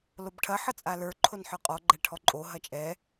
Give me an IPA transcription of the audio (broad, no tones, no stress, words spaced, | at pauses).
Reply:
lobʈʰɐ ħɤt͡sʼalə˞ ǃʰonħə˞qʼɔ ɡ͡ǃɛʈʰɔǃʼo ɦɐt͡ʃʼɛ